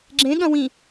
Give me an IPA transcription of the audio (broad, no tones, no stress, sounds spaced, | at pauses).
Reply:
ɡ͡ǁ ẽ ɠ ɐ̃ w ĩ